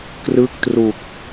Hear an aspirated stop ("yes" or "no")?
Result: no